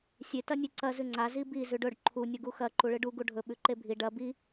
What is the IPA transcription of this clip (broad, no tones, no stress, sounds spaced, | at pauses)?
sʲ e t ɐ nʲ ʉ ǀ ɐ z ʉ ŋ͡ǀ a z i b i z ʉ ɖ ɵ ɖ ǃʰ u nʲ o ɡ u x ɐ ǃ u ɭ ɨ ɖ u ɡ u ɖʱ ɵ ɓ ʉ ǃ e bʱ i ɖ ɐ b i